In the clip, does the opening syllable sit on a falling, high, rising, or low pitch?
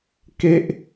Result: high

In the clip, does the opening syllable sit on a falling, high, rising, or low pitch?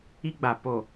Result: high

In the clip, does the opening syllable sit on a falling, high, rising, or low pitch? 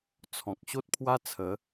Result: low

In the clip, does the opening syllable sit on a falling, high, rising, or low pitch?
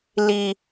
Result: high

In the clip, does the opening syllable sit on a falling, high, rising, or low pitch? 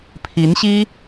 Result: rising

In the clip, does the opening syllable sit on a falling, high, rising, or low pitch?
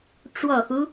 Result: low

